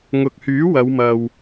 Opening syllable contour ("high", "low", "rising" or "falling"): low